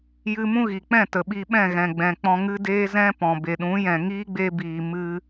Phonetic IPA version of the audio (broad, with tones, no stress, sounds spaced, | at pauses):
j ɨ˧ m ũ˦ ɣ i˨ k͡p ɛ̃˦˨ t ə˨ ɓ iː˧ ɓ ɛ̃˦˨ ɣ ɛ̃˨ ɡ͡b ɛ̃˨ k͡p ɔ̃˧ ŋ ɨ˦ d eː˦ z ɛ̃˦ p ɔ̃˨ b e˨ ɗ ũ˨˦ j ɛ̃˨ ŋ iː˦ ɡ͡b e˧ b iː˨ m ɨ˧